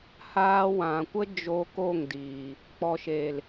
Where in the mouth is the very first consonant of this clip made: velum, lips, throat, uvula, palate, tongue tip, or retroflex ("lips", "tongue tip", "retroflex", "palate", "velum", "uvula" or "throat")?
throat